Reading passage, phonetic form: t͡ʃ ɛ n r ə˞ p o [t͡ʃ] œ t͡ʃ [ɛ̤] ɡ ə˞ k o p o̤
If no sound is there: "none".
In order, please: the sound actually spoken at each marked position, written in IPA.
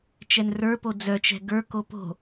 d͡z, ɛ̤

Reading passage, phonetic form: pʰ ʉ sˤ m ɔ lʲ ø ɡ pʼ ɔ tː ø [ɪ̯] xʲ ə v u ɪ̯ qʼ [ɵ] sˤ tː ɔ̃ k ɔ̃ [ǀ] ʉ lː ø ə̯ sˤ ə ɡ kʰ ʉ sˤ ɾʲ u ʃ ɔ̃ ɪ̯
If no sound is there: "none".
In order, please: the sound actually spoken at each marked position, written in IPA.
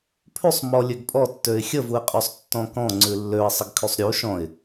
ɪ̯, ø, ŋ͡ǀ

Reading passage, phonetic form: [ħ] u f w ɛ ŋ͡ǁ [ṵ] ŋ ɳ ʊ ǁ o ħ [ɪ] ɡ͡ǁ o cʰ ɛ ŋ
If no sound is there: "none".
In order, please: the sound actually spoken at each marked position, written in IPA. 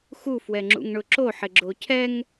x, ṵ, ɪ

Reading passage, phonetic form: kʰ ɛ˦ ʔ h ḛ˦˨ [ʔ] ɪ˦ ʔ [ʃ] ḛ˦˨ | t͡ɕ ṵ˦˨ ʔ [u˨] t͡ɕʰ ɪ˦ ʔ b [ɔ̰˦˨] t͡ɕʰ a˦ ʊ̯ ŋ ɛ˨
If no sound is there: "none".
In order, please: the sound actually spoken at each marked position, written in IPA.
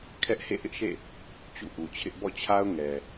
ʔ, ʃ, u˨, ɔ̰˦˨

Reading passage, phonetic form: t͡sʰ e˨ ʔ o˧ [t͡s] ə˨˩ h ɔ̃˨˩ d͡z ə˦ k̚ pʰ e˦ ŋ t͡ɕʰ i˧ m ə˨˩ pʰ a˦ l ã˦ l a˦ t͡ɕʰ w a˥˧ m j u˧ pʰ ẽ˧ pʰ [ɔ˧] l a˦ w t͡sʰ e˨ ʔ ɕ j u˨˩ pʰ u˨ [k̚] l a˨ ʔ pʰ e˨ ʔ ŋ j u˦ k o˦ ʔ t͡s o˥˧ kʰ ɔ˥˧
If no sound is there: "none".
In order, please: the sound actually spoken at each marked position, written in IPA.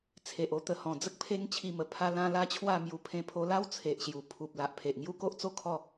t̪, o˧, p̚

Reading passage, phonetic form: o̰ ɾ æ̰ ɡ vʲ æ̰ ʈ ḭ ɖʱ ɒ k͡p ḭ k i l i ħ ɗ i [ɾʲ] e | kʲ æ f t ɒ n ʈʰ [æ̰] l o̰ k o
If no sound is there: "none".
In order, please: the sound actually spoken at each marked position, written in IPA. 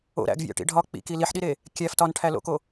ɾ, æ

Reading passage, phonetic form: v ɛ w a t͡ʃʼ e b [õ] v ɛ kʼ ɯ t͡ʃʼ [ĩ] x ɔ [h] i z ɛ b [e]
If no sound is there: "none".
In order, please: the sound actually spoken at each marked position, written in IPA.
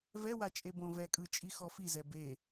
õ, i, f, e

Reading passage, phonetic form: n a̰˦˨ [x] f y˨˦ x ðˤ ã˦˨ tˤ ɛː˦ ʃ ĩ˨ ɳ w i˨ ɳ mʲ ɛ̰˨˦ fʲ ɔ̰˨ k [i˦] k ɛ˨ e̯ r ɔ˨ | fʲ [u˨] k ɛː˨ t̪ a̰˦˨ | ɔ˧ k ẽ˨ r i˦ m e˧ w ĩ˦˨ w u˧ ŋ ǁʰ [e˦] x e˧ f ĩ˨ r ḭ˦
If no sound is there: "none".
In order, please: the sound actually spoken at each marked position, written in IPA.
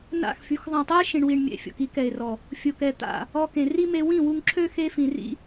x, i˦, o˨, ø˦

